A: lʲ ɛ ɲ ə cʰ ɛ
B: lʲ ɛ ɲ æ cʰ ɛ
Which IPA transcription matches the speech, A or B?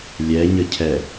A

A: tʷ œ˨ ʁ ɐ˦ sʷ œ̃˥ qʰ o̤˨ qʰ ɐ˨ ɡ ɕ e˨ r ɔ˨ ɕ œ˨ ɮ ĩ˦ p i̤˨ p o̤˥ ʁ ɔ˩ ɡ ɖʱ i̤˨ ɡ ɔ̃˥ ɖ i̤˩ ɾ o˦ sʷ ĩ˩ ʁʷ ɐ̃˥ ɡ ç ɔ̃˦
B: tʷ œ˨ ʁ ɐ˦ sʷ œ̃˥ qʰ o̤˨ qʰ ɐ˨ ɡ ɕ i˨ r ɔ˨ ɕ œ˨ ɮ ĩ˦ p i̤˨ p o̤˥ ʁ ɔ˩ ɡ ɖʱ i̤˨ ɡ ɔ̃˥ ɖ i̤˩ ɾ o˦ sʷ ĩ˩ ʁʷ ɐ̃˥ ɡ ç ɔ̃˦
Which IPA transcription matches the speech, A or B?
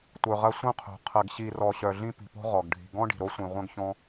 B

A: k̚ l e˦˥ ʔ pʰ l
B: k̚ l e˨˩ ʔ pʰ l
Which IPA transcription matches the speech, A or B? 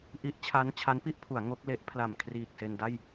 A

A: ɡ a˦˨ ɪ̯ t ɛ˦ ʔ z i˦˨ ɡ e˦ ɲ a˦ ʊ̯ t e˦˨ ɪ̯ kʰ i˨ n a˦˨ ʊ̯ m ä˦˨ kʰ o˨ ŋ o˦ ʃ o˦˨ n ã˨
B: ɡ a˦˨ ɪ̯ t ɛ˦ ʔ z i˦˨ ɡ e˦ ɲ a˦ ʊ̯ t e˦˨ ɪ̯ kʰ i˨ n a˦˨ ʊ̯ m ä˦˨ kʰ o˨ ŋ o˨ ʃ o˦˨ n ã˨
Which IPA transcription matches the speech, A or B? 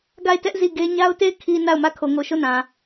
B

